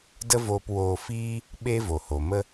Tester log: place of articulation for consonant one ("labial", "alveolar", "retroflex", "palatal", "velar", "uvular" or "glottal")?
alveolar